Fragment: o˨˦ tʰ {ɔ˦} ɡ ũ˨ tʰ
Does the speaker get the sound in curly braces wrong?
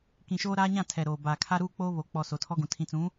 no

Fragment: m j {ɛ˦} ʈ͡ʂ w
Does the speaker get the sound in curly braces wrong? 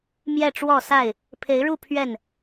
yes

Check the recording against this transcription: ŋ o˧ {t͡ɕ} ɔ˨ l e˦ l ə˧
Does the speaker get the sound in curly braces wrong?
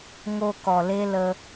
yes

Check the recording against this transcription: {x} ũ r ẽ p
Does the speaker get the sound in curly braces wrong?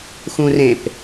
no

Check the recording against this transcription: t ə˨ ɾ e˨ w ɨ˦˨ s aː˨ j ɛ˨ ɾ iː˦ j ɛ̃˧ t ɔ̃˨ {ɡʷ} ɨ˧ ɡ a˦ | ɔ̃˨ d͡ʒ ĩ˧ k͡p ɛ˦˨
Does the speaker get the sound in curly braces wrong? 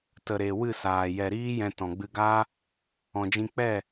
yes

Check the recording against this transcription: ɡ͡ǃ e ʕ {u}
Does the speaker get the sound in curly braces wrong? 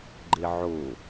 yes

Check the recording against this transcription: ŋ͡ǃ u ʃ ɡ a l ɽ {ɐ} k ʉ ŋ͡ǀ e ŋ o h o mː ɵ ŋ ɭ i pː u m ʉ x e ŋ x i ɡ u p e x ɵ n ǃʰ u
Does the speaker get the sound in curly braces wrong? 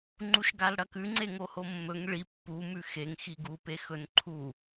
no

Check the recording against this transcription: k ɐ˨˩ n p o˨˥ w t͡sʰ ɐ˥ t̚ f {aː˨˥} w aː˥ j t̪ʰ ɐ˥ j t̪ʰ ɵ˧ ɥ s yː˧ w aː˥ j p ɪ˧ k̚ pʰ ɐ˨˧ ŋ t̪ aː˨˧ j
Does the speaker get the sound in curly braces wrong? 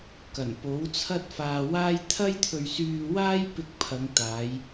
yes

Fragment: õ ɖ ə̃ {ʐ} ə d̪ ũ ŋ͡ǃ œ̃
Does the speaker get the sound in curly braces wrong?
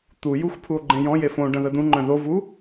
yes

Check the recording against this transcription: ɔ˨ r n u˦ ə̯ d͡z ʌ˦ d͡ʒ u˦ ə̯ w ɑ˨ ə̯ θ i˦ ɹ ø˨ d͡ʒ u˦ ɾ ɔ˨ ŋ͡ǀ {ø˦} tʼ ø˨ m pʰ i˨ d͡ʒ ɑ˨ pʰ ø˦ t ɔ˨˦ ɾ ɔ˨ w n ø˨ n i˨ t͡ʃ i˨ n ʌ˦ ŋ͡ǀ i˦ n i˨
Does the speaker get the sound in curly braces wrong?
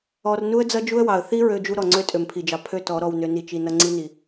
no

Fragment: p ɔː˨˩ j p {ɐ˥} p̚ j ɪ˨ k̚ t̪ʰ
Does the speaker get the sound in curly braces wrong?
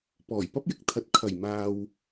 no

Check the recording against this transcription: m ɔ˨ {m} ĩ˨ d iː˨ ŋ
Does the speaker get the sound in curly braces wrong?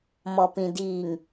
yes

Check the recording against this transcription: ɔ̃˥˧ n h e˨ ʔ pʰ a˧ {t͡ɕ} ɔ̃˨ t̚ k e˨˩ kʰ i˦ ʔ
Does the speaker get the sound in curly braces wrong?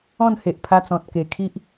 yes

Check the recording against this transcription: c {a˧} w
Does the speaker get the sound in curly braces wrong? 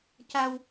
no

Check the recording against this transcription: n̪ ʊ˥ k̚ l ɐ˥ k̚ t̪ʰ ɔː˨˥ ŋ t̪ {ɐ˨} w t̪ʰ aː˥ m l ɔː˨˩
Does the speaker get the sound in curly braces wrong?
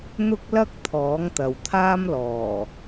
no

